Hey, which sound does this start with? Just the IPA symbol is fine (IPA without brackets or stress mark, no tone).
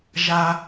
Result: ʒ